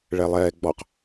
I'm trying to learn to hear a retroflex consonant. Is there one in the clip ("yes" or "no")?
yes